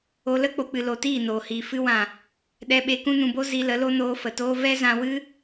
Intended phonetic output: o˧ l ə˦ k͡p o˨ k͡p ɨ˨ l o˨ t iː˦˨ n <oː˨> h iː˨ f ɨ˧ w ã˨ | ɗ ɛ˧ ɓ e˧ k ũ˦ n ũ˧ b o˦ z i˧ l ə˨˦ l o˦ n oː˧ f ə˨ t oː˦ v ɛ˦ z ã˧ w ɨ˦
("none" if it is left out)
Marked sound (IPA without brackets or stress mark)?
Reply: oː˨